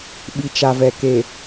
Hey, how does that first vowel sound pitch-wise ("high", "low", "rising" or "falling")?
low